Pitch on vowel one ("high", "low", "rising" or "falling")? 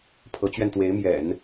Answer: rising